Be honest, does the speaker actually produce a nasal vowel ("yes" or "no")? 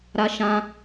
yes